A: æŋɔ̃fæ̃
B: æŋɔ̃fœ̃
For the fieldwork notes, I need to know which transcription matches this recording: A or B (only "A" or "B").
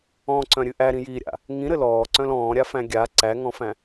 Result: A